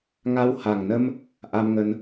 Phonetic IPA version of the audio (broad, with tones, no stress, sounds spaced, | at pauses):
ŋ a˧ w h a˨˩ ŋ n ə˧ m | ʔ a˧ m ŋ ə˧ n